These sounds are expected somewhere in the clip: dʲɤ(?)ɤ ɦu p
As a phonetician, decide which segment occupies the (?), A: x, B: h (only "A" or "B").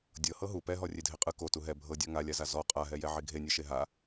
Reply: B